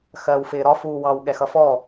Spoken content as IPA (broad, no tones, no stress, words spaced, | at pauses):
xɜːwfɪːɾɒ fuːwɑw ɠɛxʌfɔ